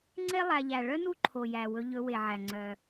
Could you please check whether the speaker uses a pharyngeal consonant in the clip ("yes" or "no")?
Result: yes